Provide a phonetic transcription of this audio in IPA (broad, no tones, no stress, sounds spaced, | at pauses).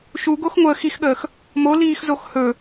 ʃ u ɡ o x ŋʷ əː x i x ɠ əː x | m o l iː x z o x h ɵ